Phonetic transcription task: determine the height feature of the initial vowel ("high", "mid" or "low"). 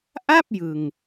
low